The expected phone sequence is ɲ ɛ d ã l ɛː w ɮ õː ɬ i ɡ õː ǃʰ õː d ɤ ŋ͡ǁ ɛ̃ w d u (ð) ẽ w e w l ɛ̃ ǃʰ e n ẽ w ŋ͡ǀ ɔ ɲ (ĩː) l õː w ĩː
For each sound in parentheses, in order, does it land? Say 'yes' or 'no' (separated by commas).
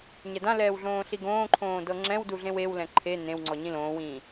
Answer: no, no